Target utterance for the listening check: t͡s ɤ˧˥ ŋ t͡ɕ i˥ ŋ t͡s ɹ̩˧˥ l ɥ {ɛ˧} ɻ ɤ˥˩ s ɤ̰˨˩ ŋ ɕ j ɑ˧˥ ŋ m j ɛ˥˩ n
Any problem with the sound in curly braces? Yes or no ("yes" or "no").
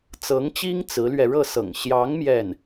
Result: no